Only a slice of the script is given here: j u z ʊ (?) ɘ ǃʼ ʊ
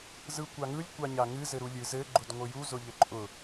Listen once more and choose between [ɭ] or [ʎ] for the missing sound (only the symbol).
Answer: ʎ